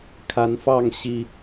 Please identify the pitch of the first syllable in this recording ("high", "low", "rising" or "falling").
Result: rising